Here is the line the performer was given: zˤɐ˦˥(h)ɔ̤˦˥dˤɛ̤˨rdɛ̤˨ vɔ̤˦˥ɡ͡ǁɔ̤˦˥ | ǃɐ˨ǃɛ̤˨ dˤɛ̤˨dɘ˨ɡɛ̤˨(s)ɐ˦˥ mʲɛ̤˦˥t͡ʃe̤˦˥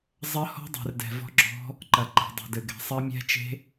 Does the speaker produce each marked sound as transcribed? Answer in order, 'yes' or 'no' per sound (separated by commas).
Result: yes, no